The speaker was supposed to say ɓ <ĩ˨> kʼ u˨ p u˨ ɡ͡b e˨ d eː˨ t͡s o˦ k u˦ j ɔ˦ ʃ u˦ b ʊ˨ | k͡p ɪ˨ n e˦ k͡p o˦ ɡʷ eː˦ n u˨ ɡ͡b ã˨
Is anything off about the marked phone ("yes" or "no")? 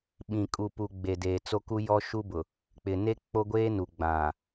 no